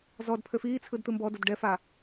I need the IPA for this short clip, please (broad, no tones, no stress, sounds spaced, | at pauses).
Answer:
z ɔ d pʰ ø f iː t͡sʰ ɯ d t̪ ɯ m b ɔ d o d ɖ ɛ f aː